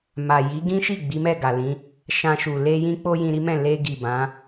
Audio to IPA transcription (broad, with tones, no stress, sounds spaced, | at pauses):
m a˨ j i˨˦ ɡ ĩ˦ ʃ i˦˨ ɡ͡b i˨˦ m ɛ˦˨ ɡ a˨ l ĩ˨˦ | ʃ ã˧ ʃ u˨ l e˧ j ĩ˦ k͡p o˦ j ĩ˧ ɾ i˦ m ɛ̃˦˨ l e˧ ɡ i˨ b ã˨˦